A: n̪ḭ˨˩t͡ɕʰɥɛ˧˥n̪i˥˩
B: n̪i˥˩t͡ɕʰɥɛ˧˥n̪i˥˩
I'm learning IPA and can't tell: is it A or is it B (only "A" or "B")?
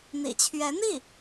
A